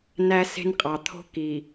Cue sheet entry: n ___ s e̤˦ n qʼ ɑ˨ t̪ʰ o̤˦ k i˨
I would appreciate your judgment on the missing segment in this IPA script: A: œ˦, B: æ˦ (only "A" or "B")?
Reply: B